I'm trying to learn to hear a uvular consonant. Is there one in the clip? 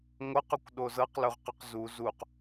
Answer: yes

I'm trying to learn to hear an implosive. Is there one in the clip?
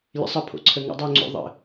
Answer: no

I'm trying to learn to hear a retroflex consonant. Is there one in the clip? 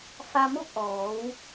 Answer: no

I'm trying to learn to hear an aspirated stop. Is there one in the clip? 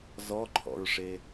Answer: yes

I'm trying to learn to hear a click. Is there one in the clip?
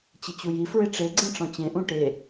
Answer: yes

